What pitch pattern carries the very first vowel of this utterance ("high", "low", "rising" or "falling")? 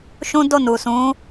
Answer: high